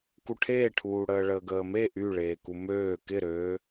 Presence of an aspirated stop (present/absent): present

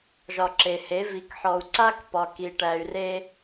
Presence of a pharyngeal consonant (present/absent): present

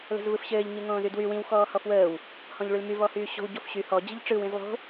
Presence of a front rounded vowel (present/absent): present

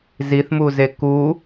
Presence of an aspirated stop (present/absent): absent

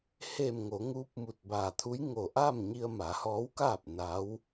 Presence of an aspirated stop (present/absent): present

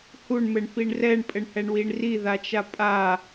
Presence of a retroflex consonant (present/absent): present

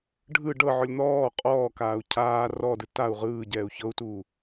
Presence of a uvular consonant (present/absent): present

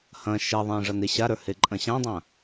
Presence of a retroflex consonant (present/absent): present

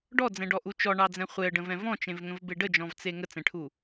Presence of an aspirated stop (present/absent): present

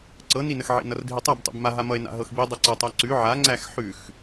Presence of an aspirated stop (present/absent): absent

